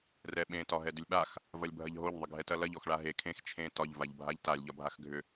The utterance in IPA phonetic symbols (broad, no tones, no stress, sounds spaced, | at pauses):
r ɛ ɓ ẽ t ɒ ɦ ɛ d ʏ lʲ ɓ a x | v ɐ lʲ bʱ ɐ ʎ ɦ o ʎ ðˤ ə ɡʱ ɛ t ɐ l ɐ ʎ ɔ x ɭ a ɦ e kʰ ẽ x t͡ʃʰ ẽ t ɒ ʎ v a ʎ bʱ a ʎ t a lʲ ʎ ɒ bʱ a x ɡʱ ʏ